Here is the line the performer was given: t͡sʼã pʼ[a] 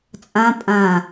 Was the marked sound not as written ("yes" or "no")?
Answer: yes